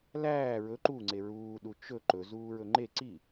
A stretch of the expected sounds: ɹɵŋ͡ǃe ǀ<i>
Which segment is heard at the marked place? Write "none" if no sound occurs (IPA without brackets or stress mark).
i